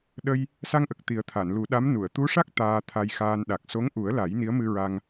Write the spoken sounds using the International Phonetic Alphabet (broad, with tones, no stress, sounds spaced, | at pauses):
ɗ ə˧ j | s a˧ ŋ ʔ ə˨˩ k̚ t̪ i˨˩˦ ə̯ t̪ʰ a˨˩˨ n l u˨˩˦ ɗ a˧˥ m n u˨˩˨ ə̯ t̪ u˧˥ ʂ a˦˥ k̚ t̪ aː˧ t̪ʰ a˧ j x aː˧ n ɗ a˨˩ k̚ s o˧˥ ŋ ʔ u˨˩˦ ə̯ l a˨˩˦ j n i˧˥ ə̯ m ɨ˧ ɹ a˧ ŋ